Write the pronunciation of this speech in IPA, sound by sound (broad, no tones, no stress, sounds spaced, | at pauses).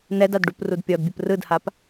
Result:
n ɛ d a d ɖ u p r u d pʲ ɔ d bʲ ɯ p r ɯ d h a p